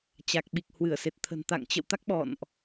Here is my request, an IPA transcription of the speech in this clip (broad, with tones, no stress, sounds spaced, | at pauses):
t͡ɕ a˨˩ k̚ ɓ i˨˩ k̚ h w ɨ˧˩ ə̯ s e˨˩ t̚ t̪ʰ ə̤˨˩ n t̪ a̰˧˨ ŋ t͡ɕ ə̰˧˨ w t̪ a˦˥ k̚ ɓ ɔ̰˧˨ n ʔ